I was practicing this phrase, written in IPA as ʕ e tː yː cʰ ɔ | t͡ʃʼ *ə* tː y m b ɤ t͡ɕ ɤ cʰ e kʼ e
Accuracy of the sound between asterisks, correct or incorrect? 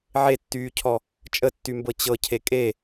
correct